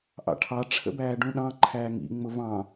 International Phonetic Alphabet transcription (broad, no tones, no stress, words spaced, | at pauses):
ʔɑ̰ʈʰɑ ʈ͡ʂʰə̰bæːɖũɗɑ̃ ǃʰæːŋḭ ŋ͡mʊvɑ̃